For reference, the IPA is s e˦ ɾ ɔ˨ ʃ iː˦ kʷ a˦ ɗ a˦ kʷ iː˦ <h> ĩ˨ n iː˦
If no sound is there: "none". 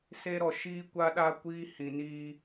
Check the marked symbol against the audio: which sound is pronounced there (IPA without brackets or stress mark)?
h